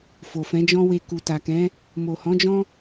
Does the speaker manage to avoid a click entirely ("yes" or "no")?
yes